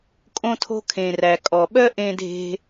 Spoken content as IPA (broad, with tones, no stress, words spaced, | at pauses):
kʼõ˦tʰo̤˦ kʰẽ˩ræ˩ kʼɔ˩ɓœ˥ ʔẽ˦dʱe̤˦